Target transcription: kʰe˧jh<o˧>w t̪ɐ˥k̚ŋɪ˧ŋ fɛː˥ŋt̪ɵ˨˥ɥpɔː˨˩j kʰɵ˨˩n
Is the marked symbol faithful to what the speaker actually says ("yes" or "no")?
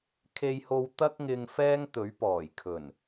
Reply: yes